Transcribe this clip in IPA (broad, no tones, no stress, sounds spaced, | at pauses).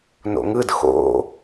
n o̰ ŋ ɯ d x o̰